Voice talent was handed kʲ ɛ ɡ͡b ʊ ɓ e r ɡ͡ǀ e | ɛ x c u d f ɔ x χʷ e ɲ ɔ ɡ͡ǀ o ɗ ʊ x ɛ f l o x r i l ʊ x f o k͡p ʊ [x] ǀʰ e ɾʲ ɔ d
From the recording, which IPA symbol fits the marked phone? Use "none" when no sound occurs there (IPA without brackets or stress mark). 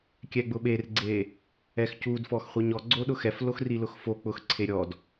x